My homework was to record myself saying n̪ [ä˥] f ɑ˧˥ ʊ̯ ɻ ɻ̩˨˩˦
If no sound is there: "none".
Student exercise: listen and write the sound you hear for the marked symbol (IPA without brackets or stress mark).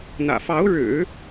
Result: ä̰˨˩